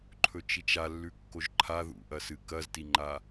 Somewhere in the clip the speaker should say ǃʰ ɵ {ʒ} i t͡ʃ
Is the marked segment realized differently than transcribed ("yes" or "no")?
yes